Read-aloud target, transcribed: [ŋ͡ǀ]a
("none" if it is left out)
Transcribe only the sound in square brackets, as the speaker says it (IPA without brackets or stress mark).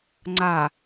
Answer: ŋ͡ǀ